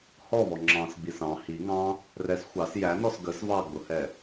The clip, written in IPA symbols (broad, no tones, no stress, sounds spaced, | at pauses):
h ɔ v ɔ ŋ͡ǁ ɑ̃ s ɡ͡b i s ɑ̃ h i ŋ ɑ̃ | r ɛ s xʷ ɑ s j æ n ɔ s ɡ ə s v ɑ ɡ͡b ʊ h ɛ